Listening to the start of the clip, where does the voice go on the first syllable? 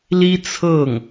high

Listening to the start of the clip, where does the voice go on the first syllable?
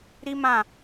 high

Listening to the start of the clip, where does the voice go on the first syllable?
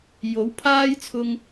rising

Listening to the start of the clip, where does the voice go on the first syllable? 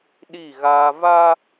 falling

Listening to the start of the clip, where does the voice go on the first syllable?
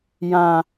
low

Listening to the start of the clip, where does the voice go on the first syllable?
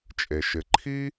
low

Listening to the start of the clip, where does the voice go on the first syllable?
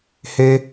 high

